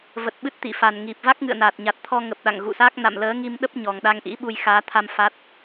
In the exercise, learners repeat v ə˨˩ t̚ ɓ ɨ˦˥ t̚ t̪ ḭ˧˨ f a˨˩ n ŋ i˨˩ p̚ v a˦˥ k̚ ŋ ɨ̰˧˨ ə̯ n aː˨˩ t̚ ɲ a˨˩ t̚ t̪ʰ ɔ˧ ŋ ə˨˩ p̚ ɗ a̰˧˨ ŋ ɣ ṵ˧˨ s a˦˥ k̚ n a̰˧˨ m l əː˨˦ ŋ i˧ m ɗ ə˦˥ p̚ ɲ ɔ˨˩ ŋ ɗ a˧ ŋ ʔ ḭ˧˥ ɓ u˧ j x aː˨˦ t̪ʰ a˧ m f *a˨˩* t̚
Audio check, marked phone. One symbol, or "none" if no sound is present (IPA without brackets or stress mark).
a˦˥